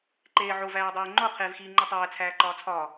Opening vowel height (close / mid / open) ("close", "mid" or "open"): mid